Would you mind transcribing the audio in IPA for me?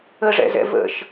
ə ʐ ɛ̰ z ɛ̰ v ə̰ ʃ

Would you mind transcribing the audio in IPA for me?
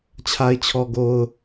t͡ɕʰ a˨ ɪ̯ t͡ɕʰ ɔ˨ ɡ o˨ ʊ̯

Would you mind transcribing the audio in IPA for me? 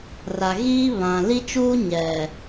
r a˨ ɣ iː˦ β ã˨ l i˦ t͡ʃ uː˦ ɲ ɛ˨

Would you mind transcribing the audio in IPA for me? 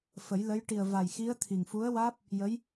f ə˨˩˦ j l ə˧˥ j ʈ i˨˩ ə̯ v a˨˩ j x i˧˥ ə̯ t̪ʰ i˨˩ ŋ f u˧˥ ə̯ w aː˦˥ p̚ | j ə˧˥ j

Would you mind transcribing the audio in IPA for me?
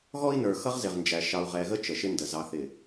ɣ ɔ˦ i̯ n ə˞˨ x ʌ˦ ʁ z ɪ˨ ʁ n d͡ʒ æ˨ ʃ ɑ˨ u̯ ʁ ɛ˨ ɣ ə˦ t͡ʃ ə˨ ʃ ɪ˦ n d ə˨ z ɑ˨ θ ɪ˨

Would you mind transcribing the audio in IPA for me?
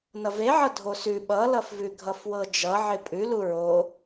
n ʌ v e ʕ ʌ dʱ o s ʉ ɓ ʌ l ʌ f v ʉ ɡʱ ʌ f w ɤ d͡ʒ ʌ ʕ ɪ pʼ ʉ l u ɹ o

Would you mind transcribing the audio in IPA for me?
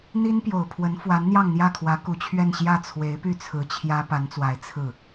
n̪ i˥ n p j o˨˩ ʊ̯ pʰ w ə˧˥ n f w a˧˥ n n̪ j ɑ˥˧ ŋ n̪ j ä˥˩ kʰ w ä˧˥ k u˨˩ t͡ɕʰ ɥ ɛ˥˧ n ɕ j ä˥˩ t͡sʰ w e˧˥ ɪ̯ p y˥˩ t͡sʰ ɹ̩˧˥ t͡ɕʰ j ä˥ p a˧˥ n t͡s w a˧˥ ɪ̯ t͡sʰ ɹ̩˥˩

